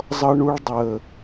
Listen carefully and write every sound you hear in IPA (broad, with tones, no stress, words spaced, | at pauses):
zˤʌ˦ɳu˦ɭdˤəː˨